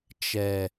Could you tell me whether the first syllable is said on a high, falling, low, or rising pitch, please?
low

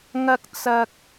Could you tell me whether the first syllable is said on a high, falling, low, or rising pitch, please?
low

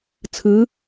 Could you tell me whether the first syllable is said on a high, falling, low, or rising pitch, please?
rising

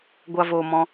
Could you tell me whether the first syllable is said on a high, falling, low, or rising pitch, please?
low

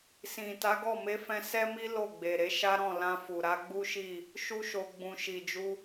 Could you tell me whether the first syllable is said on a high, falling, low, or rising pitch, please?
low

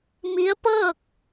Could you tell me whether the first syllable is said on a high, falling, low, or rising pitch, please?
rising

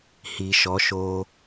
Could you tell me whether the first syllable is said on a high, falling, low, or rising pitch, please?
low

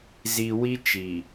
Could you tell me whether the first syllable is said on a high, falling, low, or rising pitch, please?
low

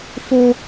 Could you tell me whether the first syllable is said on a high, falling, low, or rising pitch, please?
high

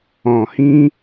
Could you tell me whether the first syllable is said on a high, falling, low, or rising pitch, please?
low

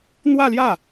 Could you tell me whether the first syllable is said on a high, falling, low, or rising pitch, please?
falling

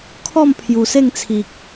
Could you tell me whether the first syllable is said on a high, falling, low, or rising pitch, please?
falling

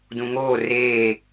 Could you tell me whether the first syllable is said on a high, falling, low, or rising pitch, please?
low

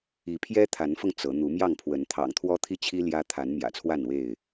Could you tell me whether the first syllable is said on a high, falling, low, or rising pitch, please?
rising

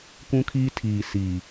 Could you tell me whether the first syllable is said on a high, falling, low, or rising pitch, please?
high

